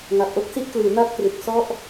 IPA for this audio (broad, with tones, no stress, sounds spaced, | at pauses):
ŋ a˨˩ p̚ ʔ o˥˩ k̚ s i˥˩ ʔ k l ɯː˩˦ n a˥˩ t̚ k r ɯ˨˩ k̚ s ɔ˦˥ ʔ